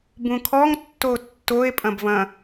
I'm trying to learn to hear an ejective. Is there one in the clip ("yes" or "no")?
yes